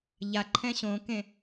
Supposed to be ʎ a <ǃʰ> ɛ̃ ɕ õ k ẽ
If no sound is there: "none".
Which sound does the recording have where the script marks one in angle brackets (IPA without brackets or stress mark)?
ǃʰ